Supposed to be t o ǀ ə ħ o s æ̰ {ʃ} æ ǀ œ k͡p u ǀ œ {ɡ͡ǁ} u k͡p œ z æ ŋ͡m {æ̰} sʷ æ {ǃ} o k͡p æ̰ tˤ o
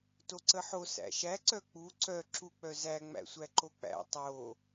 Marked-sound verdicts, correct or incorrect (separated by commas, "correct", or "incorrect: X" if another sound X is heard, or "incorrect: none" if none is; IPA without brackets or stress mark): correct, incorrect: ǁ, correct, correct